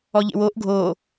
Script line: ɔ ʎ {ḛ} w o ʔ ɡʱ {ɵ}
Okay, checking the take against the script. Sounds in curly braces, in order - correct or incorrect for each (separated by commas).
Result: correct, incorrect